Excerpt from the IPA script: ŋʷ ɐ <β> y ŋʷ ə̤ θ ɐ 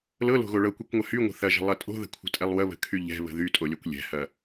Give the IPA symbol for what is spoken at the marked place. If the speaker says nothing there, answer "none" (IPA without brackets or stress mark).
h